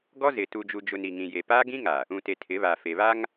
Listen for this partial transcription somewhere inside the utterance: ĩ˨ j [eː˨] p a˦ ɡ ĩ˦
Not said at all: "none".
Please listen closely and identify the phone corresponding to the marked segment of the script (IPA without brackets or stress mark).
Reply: e˨